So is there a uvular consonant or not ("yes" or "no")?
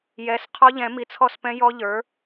yes